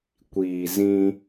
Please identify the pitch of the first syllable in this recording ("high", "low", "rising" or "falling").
low